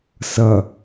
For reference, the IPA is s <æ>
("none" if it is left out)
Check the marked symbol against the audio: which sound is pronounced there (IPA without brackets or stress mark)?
ɐ